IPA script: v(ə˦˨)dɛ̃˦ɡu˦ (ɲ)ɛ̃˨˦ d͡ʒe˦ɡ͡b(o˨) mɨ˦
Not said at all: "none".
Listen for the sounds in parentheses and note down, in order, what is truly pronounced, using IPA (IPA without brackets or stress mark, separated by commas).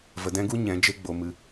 ə˧, ɲ, o˧